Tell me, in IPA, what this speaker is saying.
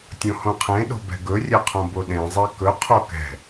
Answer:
tʲõhõqʰẽɗo̤ bɛ̤ɡɵrʲɛ qʰõboɗẽzˤe kɵqʰo kɛ̤

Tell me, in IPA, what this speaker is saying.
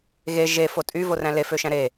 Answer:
ɣe ʒefo tʼy voræ̃lefø ʃæ̃ɾe

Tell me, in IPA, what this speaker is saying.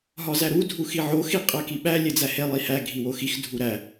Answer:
ɦɒzæɾu dʱuxiʕo xiqʼækiɓæ lʲed͡zæhe lˠihæ ɡʱiwoxix dʱuɾæ

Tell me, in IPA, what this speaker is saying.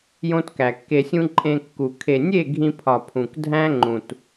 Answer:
jõ˦tkæ˨kːe˧sʲũ˦ ǃʼẽ˧ kːu˨ kʰe˨nʲe˦˨ ɡʱĩ˧pʰɒ˨ pʰũ˨kdʱæ̃˦ ŋ͡ǃũ˨t

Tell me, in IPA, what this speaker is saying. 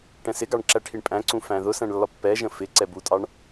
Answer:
ʈɛ̃sɪɡɑɳ ǁæʈʰiɳpʼæ̃ǀũ fæ̃ðʊsæ̃ɳ lːɒpːɛʒə̃ fɪ ǀɛbutʼɑɳ

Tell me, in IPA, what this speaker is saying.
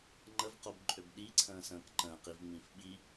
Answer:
ŋ͡ǃəvqobǃʼøb ɗiǀʰə̃ːsə̃ːk ǃə̃ːqivŋ͡mĩf ɓi

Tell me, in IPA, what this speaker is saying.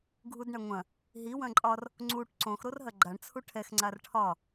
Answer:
ɡʱudɳɐŋʷɐ̃ | ɦi wɐ̃ǃʼɒr | ŋ͡ǀuʈ ǀõx ɾorɦɐɡ͡ǃaɳ t͡sʰuʈʰɛx ŋ͡ǀarʈʰɒ

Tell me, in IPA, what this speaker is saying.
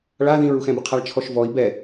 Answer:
ɭa ðĩɹuxɛ̃bɪ qʰaɭt͡ʃʰɔʃvɔi̯ bɛ

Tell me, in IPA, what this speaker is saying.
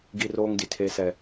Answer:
ɡi˦roː˦ŋdi˨ tʰe˦sɛ˦

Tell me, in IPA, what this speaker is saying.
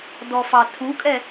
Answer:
dɔfɑtʰukʼɛ

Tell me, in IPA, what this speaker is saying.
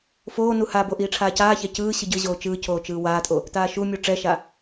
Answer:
foːnu habo ʔiːʈ͡ʂʰaːcaːçɛ cɯː ɕɯɟɯʑoː t͡ʃɯːcʰoː t͡ʃɯːwaːtʼo | taːʃumʲu ʈ͡ʂɛʃa

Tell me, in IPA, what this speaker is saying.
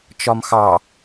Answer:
t͡ʃɒmxɑ

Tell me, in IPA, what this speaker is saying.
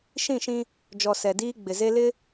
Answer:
ʃĩ˦˨ʃĩ˦ | d͡ʒɔ˨ sɛ˨ diː˦ɡ͡bɪ˨ ze˦lɪ˦

